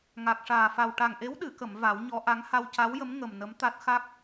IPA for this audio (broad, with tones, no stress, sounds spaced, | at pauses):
ŋ a˨˩ k̚ ʂ aː˨˩ f a˨˩ w ʈ a˨˩ ŋ ʔ e˧˥ w ɗ ɨ˨˩˨ k ə˨˩˨ m v a˨˩˦ w ɲ ɔ˧˥ ʔ a˧˥ ŋ h a˧ w c a˧˥ w j ə˧˥ m ŋ ə˨˩ m n ə˧˥ m t̪ a˦˥ t̚ x a˦˥ k̚